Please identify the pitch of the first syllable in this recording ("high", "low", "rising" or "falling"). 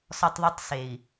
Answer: high